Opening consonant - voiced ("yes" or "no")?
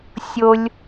no